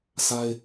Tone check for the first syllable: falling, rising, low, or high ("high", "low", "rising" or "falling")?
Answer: high